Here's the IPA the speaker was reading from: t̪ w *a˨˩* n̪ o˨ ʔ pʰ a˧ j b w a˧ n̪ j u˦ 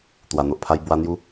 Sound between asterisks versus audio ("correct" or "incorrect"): correct